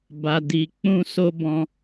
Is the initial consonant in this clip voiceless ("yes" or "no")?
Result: no